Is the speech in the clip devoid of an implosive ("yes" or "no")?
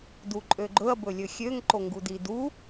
yes